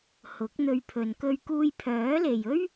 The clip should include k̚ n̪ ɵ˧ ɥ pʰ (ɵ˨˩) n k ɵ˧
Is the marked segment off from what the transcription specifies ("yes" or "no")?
yes